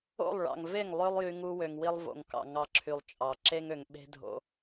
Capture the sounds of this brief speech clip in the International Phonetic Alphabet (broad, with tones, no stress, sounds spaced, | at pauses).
o̰˦˨ lˠ ɭ ɑ̰˨ ŋ v e˦˨ ŋ lˠ ø˦ lˠ j y˧ ŋ u˧ w ø˨ ŋ w i˧ lˠ v o̰˨ ŋ k ɑ̰˨ ŋ ɑ˧ ǁʰ y˨ lˠ t͡ʃʼ ɑ˨ ǁ e˦ ŋ ø˨ ŋ ɓ e̤˧ dʱ o̰˧